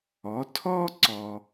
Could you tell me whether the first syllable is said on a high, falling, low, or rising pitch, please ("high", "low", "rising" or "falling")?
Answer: rising